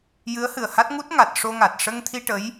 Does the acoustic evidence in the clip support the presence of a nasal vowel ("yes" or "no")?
no